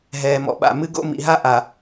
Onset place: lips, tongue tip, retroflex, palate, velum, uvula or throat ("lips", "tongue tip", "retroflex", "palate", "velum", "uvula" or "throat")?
throat